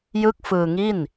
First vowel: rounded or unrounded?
unrounded